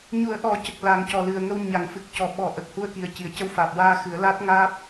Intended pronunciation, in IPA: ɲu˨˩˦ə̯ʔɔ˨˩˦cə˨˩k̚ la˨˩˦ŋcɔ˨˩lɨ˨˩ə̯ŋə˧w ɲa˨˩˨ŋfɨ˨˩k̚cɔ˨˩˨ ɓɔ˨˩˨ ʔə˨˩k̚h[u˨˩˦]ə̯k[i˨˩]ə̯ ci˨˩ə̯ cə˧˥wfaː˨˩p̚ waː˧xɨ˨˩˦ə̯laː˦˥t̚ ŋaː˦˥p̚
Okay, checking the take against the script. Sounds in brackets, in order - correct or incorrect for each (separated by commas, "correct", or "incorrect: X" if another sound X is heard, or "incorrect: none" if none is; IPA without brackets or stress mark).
incorrect: u˧, correct